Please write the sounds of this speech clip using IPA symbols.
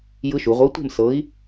j ɯ˦˥ ʃ u˩˧ ʁʷ e˨˥ tʷ e̤˥˨ m s ɤ˨˥ i̯

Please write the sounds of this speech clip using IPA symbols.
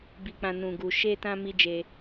b i˧ k͡p ã˧ n ũ˨ ɡ u˨ ʃ e˧ t ã˧ m i˦ d͡ʒ e˧

